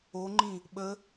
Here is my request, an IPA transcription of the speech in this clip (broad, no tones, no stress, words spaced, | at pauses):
oŋ͡ǃĩ | ɓə